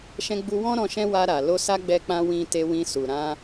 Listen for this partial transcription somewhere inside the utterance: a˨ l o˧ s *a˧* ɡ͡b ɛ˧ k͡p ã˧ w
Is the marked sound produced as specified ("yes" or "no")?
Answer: no